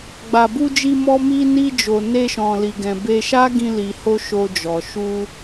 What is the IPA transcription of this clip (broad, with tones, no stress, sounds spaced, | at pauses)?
ɡ͡b a˨ b u˧ d͡ʒ i˧ m ɔ˧ m i˧ n i˧ d͡ʒ o˨ n e˧ ʃ ɔ̃˨ l i˨ ɡ ɛ̃˨ b e˧ ʃ a˦ ɡ ĩ˧ l i˨ h o˧ ʃ o˧ d͡ʒ ɔ˨ ʃ u˧